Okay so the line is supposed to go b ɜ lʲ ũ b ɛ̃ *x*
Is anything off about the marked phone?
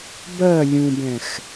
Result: no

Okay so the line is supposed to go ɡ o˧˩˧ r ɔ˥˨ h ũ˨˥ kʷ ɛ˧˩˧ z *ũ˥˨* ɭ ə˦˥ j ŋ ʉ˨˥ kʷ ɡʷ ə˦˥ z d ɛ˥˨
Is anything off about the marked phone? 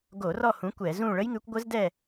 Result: no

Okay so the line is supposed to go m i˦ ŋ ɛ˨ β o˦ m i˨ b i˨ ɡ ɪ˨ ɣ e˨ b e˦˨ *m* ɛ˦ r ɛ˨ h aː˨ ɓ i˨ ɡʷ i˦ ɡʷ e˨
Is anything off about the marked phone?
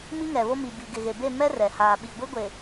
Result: no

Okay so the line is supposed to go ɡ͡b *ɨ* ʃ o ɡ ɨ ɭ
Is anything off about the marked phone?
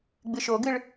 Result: no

